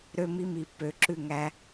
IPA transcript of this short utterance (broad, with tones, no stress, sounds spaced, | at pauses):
ɾ ø˧ m i˧ m i˨ p ø˨˦ ǁ ʉ˦˨ ŋ æ˧